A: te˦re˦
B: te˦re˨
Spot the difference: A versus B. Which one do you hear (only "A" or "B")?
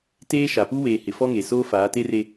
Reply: A